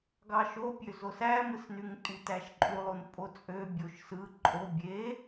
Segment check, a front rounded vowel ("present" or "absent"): present